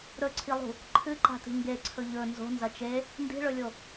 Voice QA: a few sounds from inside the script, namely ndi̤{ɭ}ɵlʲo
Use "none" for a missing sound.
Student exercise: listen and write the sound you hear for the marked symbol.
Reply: ɭ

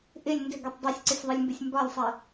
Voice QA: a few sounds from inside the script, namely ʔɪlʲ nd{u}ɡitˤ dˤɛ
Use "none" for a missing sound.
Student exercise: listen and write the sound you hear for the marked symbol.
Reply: ʏ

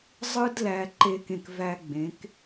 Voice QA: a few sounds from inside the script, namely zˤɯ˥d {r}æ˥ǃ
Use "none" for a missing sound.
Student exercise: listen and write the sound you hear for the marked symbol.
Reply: l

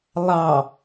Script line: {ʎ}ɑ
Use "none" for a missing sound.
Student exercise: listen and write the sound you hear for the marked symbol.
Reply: lˠ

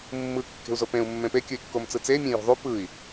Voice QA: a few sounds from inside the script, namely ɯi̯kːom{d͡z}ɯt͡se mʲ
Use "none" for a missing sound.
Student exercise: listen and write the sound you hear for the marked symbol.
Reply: t͡s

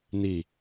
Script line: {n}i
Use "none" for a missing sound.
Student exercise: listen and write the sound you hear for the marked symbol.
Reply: n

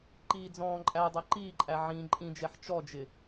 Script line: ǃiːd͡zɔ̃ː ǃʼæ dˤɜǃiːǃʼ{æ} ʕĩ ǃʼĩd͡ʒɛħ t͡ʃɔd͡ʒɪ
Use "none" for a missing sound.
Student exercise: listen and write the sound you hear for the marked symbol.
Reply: æ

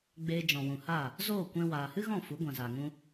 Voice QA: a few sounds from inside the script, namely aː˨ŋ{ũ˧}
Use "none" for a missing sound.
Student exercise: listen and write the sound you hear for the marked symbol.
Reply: ũ˧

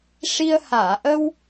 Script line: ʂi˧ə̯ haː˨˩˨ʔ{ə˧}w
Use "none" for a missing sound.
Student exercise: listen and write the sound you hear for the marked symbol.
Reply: ə˧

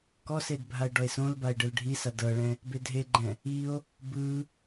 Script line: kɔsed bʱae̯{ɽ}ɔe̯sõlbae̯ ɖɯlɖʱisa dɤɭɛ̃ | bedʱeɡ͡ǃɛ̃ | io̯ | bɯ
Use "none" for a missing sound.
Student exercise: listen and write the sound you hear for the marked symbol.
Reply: ɖ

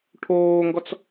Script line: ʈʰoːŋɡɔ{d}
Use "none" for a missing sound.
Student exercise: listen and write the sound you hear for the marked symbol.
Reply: t͡s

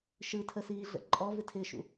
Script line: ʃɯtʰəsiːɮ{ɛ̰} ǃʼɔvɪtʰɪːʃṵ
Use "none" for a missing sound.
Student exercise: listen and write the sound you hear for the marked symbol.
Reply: ə̰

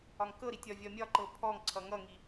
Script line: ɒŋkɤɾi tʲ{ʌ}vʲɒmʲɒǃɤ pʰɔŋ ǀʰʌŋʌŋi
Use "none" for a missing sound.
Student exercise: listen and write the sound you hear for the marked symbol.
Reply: ɒ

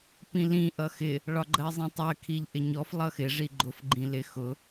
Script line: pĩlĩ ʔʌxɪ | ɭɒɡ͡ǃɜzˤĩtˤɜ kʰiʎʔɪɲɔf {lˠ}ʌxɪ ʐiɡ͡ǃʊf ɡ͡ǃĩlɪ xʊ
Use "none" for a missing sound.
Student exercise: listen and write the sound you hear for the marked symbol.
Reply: lˠ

